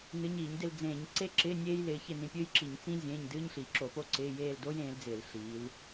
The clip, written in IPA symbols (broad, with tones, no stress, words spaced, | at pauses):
nɨ˨˦ɲiː˧˩˧ɲdɪ˦˨l d͡zẽː˧˩˧ɲǀe˦˥ǁɪː˧˥˧ nʲeː˦˥jlɪː˨˦çɪ˦˨ nĩ˨˦pʲɨː˦˥jǁi˧˩˧ɲ t͡sĩ˦˥ zʲẽː˧˥˧ɲ dɨː˧˥˧ɲɬi˧˩˧ǁo˧˩˧po˦˥ ǀɪː˧˥˧ jeː˦˨ldo˦˥jẽː˨˦ld͡zɪː˧˩˧l ɬiː˨˦l